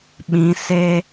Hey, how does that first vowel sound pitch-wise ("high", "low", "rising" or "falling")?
rising